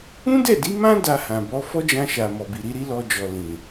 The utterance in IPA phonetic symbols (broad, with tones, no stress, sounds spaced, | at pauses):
ũ˦ d ɛ˦˨ d i˨˦ m ã˦ d a˧ h ã˨ b ɔ˨˦ f ɔ˦ d͡ʒ ã˧ ʃ a˨ m ɔ˨ b i˨ ɾ i˨˦ ɾ i˦ l ɔ˧ d͡ʒ ɔ˨ l ĩ˨